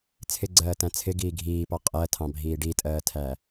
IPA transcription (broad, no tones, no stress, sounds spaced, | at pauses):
t͡sʰ ɪ ɡ͡ǀ ɜː t æ̃ t͡sʰ ɪ ɡ iː ɡʱ iː p ɑ qʼ ɜ tʰ ɑ̃ bʱ iː ɖ i tʼ ɜː tʰ æ